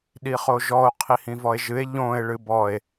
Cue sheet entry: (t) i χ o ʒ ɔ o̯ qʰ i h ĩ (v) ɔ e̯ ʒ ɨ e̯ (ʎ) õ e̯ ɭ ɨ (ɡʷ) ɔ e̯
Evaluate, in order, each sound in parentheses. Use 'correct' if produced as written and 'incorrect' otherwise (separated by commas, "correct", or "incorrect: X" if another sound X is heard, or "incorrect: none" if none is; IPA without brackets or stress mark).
incorrect: ɗ, correct, correct, incorrect: b